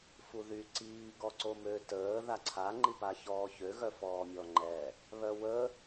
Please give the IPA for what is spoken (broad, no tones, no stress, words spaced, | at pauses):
fuðy ǀiː ɡɔǀomø təː ðaǀʰa ŋ͡ǃipaçɔːçø ɣœfɔːmʲɔŋ͡ǃɛ | βœwə